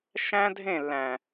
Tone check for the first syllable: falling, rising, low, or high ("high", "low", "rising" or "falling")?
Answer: high